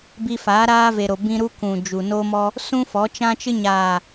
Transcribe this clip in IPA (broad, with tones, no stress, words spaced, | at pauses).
bi˧faː˨˦ ɾaː˦ve˨ɾo˨ bĩ˧ ɾu˦kũ˨d͡ʒu˨ no˧mɔ˧ | sũ˦fɔ˨˦t͡ʃã˦t͡ʃɨ˦ ɲaː˨